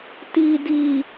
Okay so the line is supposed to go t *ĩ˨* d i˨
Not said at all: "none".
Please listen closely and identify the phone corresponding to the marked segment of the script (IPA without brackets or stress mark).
i˨